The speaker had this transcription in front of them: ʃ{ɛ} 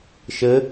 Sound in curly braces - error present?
yes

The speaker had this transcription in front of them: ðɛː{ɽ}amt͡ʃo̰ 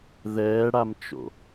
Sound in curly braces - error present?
no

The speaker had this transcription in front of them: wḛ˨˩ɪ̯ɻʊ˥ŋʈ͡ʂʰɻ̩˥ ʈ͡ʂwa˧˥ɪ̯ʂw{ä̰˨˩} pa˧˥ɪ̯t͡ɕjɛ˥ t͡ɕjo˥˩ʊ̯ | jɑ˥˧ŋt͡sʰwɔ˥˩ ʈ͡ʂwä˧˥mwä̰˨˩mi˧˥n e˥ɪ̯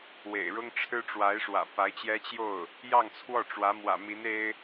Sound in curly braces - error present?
no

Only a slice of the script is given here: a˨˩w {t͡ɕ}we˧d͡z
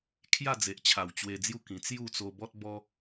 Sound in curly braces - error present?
no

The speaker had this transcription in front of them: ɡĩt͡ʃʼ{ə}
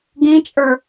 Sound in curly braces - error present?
yes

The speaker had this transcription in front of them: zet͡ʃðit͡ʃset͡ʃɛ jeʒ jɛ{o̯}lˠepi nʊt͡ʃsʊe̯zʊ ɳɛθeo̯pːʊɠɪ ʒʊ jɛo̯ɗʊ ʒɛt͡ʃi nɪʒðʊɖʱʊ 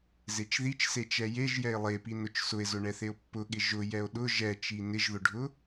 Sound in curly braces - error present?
yes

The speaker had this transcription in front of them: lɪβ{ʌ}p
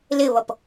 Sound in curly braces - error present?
no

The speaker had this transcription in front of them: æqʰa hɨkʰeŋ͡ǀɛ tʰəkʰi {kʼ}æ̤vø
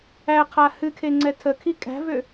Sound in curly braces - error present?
no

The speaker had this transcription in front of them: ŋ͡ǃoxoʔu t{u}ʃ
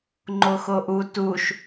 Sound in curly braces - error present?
no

